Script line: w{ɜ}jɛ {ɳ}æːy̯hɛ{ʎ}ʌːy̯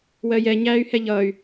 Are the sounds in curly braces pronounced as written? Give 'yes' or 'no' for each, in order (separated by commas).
yes, no, yes